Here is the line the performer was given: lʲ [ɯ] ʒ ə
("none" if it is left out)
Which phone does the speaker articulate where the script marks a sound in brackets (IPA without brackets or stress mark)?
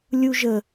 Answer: u